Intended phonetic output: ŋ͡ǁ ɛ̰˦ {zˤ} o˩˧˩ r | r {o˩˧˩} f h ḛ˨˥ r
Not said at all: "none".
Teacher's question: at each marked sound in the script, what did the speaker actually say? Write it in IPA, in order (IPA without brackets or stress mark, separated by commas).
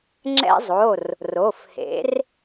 zˤ, o˩˧˩